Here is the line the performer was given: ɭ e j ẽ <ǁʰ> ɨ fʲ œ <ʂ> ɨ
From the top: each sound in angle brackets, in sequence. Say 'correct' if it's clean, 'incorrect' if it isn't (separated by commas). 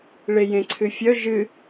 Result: incorrect, incorrect